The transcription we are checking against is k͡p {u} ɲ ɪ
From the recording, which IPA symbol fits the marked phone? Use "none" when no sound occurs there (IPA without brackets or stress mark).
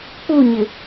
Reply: u